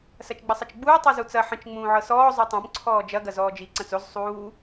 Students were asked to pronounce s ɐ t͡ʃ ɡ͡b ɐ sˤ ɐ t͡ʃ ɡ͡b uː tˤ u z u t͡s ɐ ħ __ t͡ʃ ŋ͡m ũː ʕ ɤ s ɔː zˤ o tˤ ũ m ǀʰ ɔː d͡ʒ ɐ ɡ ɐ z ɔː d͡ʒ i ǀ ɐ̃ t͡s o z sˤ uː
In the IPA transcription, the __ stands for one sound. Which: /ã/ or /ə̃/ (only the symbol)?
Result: ə̃